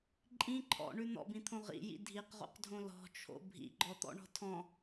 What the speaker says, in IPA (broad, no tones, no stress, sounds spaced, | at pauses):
ǃʼ ĩ ǃʰ ɔ̰ ɳ ʉ n̪ ɔ̰ b ĩ t̪ʰ õ ʁ ḭ j ḭ dʱ i q ʁ o̰ q dʱ õ l ɔ̤ t͡ʃʰ o̰ bʱ ḭ ɡ͡ǃ ɔ t̪ ɔ̰ ɳ ɔ̤ tʰ ɔ̃